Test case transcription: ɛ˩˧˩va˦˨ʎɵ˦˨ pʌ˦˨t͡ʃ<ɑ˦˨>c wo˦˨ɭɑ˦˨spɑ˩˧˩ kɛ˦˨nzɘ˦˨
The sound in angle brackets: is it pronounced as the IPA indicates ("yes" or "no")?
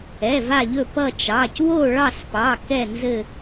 no